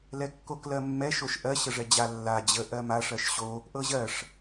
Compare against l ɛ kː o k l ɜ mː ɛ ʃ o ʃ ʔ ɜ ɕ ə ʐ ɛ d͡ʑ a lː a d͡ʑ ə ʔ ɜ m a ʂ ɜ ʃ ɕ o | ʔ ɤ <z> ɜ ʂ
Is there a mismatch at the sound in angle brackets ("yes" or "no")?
yes